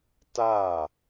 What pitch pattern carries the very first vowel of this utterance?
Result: falling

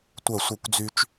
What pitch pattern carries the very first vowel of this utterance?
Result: falling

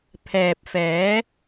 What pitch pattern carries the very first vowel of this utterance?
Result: low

